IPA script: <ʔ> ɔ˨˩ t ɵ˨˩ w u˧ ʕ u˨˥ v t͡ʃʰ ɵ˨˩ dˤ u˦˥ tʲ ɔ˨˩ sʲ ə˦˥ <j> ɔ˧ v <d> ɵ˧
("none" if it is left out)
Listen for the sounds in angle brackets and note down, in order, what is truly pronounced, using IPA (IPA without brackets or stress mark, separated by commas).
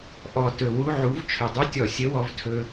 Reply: ʔ, w, tʰ